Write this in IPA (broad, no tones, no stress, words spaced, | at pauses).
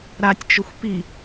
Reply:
ɾatʲt͡ʃʊxʷ pi